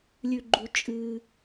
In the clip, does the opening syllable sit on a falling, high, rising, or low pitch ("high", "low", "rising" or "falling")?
low